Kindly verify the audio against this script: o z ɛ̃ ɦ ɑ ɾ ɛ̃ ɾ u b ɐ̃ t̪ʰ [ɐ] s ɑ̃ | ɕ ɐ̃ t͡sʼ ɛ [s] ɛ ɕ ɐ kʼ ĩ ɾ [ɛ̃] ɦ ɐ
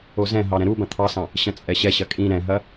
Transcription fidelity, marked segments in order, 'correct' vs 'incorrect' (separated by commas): incorrect, incorrect, correct